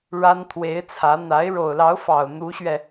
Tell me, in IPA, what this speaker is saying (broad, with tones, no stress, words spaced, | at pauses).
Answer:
ɻa˥nt̪ʰwe˧˥ɪ̯t͡sʰä˧˥ n̪a˧˥ɪ̯ ɻo˨˩ʊ̯lɑ˧˥ʊ̯fɑ˨˩ʊ̯ n̪u˧˥ɕɥɛ˧